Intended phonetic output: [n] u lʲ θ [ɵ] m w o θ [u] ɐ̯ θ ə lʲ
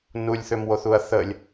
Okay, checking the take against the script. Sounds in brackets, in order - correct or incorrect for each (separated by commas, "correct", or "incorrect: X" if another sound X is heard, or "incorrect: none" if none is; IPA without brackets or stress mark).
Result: correct, incorrect: ø, correct